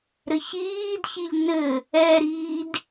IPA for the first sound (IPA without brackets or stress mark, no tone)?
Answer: ɾ